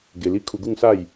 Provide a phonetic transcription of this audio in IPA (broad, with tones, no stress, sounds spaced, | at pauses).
ɡ e˧ l i˦ kʰ u˧ ɡ u˥˧ ŋ s a˥˧ j